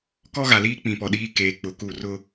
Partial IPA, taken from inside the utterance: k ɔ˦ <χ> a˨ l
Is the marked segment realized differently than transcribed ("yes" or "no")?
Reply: yes